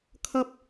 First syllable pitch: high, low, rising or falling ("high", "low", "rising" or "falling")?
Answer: high